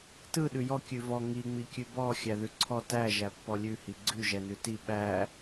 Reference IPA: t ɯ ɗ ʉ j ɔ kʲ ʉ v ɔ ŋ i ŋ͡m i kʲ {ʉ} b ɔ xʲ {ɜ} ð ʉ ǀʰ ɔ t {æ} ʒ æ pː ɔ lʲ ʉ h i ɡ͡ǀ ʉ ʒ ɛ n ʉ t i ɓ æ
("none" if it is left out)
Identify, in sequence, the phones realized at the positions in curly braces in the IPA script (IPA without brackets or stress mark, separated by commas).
ʉ, æ, æ